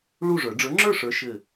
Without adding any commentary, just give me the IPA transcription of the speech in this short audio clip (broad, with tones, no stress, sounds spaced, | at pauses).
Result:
ɭ u˥˨ ʐ ə˞˨˩˦ ɖ͡ʐ ə˞˨˥ ŋ͡ǁ ə˞˥˨ ʂ ə˞˨˥ ʃ ɘ˥˨